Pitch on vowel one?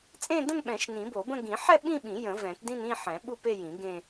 falling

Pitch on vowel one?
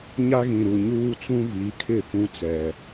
high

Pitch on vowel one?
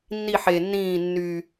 falling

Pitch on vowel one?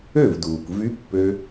falling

